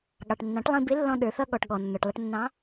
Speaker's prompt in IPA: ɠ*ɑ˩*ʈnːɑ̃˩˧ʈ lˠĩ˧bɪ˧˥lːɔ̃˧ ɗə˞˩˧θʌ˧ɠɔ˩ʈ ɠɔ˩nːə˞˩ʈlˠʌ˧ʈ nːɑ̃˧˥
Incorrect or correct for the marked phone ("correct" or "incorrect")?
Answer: correct